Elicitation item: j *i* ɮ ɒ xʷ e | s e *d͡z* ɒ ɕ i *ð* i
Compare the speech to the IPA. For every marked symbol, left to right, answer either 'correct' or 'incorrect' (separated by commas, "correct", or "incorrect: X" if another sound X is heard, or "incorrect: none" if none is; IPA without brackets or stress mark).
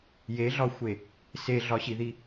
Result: incorrect: e, incorrect: ɮ, correct